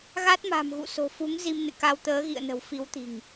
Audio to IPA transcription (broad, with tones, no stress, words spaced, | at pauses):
ɣa˦˥t̚ma̤˨˩mɣṵ˧˨ so̤˨˩fu˨˦ŋ zi˧mnɨ̰˧˨ka˧w t̪əː˨˦ɣḭ˧˨ə̯nə̤˨˩w fi˨˦wt̪i̤˨˩ŋ